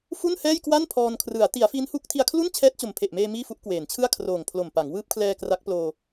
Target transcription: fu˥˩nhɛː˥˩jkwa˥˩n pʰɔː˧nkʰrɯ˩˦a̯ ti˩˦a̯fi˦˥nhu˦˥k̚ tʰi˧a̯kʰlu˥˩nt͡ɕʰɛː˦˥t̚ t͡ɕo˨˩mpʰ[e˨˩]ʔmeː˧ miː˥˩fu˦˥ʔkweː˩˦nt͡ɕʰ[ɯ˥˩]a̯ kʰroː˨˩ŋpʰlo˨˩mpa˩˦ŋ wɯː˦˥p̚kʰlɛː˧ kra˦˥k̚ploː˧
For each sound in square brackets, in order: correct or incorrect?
correct, correct

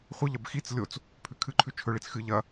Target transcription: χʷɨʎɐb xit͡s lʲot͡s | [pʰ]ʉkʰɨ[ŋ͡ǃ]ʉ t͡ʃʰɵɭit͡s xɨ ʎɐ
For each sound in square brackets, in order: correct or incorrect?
correct, incorrect: ǃʰ

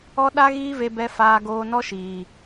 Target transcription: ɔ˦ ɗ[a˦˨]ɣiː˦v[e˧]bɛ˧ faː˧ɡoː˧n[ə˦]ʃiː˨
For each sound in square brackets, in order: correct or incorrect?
incorrect: a˦, correct, incorrect: ɔ˦

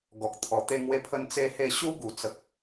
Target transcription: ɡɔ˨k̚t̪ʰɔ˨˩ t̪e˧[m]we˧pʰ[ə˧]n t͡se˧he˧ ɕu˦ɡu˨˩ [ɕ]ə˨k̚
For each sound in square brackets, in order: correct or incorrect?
incorrect: ŋ, correct, incorrect: t͡s

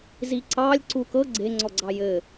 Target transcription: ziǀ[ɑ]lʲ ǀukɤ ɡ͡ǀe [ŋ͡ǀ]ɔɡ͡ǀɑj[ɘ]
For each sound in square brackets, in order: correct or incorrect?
correct, correct, correct

